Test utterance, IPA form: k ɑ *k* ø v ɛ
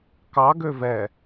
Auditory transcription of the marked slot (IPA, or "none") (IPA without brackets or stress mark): ɡ